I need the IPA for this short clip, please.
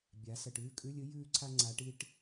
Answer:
bʲ a˩˧ s ɐ˨˩ ʈ ʉː˥˨ kʼ ʉ˧˥˧ lʲ ɨ˥ j ʉː˥˨ ǀʰ a˥ ŋ͡ǀ a˨˥ ʈ i˥ ʈ

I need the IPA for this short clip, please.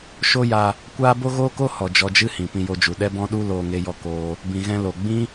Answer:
ʃ o˦ j a˧ | kʷ aː˦ b o˦ ɣ oː˦ k o˦ h ɔ˨ d͡ʒ ɔ˧ d͡ʒ ɨ˦ h ĩ˨ p ĩ˧ j o˧ d͡ʒ u˨ ɗ ɛ˦ b ɔ̃˦ ɗ u˦ l oː˧ ŋ e˧ j ɔ˧ k oː˧ | b ĩ˨ ɣ ɛ̃˧ l o˨ ɡ͡b ĩ˦

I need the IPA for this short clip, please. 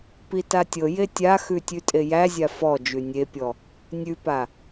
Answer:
p i t a tʲ ɤ j e tʲ a x ʉ tʲ ʉ tʼ e j æ zʲ a f ɔ d͡ʒ ʉ nʲ e pʲ ɔ | nʲ ʉ p a

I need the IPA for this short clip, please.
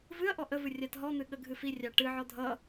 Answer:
v ɨ ɐ̯ ʔ ɔ ʔ ə v ɨ rʲ a t ɦ ɔ n̪ ɨ ɠ ə ɡʱ ɨ f i rʲ ɑ ʈ ɨ ʕ ɔ dʱ ʌ

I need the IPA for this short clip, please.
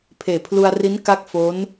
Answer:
pʰ eː˨˩ pʰ l u˧ a̯ r i˦˥ n k a˥˩ k̚ f o˦˥ n

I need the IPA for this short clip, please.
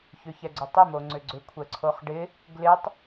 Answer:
ç ʏ ç ɛ ɡ͡ǀ ʏ tˤ ɪ m o ŋ͡ǀ ʏ ɡ͡ǀ ʏ kʷʰ ɛ ǀʰ o χ ɖ ɪ | ɡ l ɪ tˤ

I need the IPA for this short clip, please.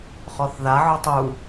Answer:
χ ɔ θ ð a ʕ ɔ tˤ u

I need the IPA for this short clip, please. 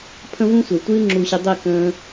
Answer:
pʰ ə̃˦ v ũ˦ sʷ e˨ tʷ ɨː˦ ŋ͡ǁ u˧ ɕ ɨ˧ dˤ e˦˨ k ə̃ː˧

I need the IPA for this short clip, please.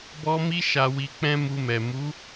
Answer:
b ɔ˧ m i˧ ʃ a˨ w i˨ k͡p ɛ̃˧ m u˧ m ɛ˨ m u˨˦

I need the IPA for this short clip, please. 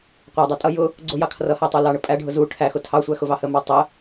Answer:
qʷ æ dˤ æ tʼ ʌ j ʊ | ɡ͡ǀ ʊ j ɑ kʰ r ʌ h æ tˤ u l ɑ ɳ ə pʼ æ ɖʱ ʊ z u ʈʰ æ x ʊ tʰ ɑ sʷ æ x ʊ v ɑ h ə m ɑ tˤ ə

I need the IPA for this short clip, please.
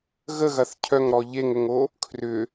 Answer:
ɣ ə ɣ ɐ θ cʰ œ ŋ ɾ ɔ ʎ e ŋ ʏ ŋ o | kʰ r ʏ

